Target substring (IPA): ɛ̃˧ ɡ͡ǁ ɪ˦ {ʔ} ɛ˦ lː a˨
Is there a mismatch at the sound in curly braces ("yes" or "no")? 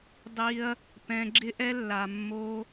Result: no